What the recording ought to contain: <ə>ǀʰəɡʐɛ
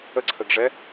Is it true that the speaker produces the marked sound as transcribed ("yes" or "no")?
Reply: yes